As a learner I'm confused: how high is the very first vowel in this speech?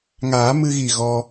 low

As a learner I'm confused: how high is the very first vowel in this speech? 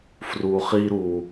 high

